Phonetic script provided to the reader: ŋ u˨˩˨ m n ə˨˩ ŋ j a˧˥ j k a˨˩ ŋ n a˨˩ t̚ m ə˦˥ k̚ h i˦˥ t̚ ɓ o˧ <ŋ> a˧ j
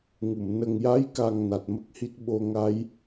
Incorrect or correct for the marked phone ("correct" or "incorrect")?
correct